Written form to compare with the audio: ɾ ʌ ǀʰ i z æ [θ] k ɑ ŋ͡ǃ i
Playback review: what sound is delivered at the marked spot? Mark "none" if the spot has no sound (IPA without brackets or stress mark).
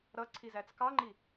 t͡s